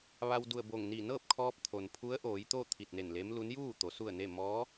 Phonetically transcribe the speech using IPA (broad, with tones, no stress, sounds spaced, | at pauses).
ʋ a˧ w d u˧˩ ə̯ b o˧˩ ŋ n i˧˩ n ɤː˥˨ p̚ kʰ ɔː˧ p̚ t̪ʰ o˩ n pʰ u˧˥ ə̯ ʔ oː˩˧ j t̪ o˥˨ t̪ʰ i˧˩ t̚ n e˧˩ n l e˧˥ m l u˧˥ n j uː˥˨ t̪ o˩˧ s u˥˨ ə̯ n e˥˨ m ɔː˧˥